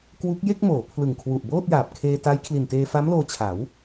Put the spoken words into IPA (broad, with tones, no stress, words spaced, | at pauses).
kwu˦˥k̚ je˥˩k̚moː˩˦ pʰlɯ˨˩ŋkʰwu˨˩ʔboː˥˩t̚jaː˨˩p̚ kʰeː˧ta˦˥jkʰli˨˩nteː˧ fa˦˥mloː˧t͡ɕʰa˩˦w